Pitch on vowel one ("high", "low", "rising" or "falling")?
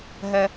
high